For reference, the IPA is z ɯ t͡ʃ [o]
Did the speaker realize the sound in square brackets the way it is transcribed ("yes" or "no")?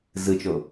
yes